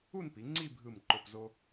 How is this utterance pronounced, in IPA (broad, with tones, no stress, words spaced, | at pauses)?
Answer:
u˥˧npi˩˧ ŋ͡ǀi˥˧bʱɯ˧˩mǃo˧˩pzo˧